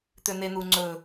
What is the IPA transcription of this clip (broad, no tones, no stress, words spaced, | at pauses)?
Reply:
t̪øn̪en̪uŋ͡ǀɵ